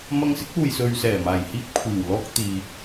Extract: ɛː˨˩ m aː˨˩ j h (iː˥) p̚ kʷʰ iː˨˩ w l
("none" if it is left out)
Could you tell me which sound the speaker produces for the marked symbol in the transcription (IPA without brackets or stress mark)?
iː˧